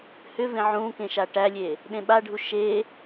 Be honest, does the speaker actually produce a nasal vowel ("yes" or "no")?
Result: yes